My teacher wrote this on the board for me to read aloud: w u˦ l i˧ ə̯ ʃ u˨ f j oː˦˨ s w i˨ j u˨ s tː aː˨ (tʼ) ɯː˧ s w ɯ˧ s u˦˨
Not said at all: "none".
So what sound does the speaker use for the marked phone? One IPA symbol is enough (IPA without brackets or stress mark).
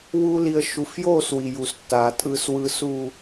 tʼ